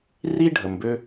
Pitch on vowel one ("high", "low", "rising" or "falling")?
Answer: high